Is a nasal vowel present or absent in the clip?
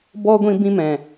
present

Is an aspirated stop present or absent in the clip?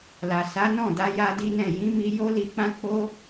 absent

